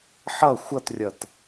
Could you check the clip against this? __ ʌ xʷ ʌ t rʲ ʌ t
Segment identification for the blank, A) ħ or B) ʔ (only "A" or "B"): A